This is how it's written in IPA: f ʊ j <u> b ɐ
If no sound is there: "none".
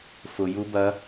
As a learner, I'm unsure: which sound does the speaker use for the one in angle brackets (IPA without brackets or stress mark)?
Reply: u